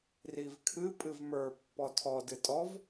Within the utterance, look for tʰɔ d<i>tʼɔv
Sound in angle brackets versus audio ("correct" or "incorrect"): incorrect